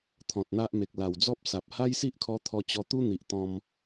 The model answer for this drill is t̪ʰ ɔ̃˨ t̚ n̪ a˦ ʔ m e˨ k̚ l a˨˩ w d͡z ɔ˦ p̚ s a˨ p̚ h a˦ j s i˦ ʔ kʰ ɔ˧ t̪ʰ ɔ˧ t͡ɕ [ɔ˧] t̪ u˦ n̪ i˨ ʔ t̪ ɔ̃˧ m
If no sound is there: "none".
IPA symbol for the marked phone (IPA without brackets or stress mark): ɔ˧